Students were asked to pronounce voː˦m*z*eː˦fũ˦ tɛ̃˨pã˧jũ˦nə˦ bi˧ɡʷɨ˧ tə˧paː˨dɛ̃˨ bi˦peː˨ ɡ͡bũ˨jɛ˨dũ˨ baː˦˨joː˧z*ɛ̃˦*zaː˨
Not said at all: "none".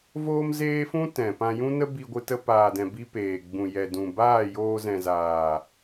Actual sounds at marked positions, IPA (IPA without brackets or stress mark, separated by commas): z, ɛ̃˨